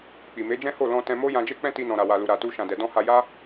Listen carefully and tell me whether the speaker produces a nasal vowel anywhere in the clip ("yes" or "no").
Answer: yes